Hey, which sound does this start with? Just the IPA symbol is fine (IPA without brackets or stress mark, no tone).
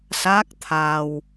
s